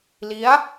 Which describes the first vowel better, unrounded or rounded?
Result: unrounded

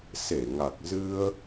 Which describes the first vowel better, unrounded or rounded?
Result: unrounded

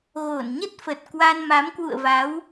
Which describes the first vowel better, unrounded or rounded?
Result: rounded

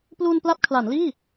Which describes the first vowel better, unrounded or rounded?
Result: rounded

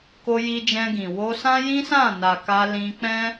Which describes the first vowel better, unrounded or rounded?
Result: rounded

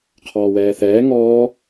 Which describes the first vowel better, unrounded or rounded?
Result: rounded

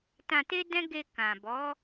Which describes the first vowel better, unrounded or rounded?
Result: unrounded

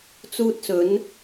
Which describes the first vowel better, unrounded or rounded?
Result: rounded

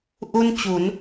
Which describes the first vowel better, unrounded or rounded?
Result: rounded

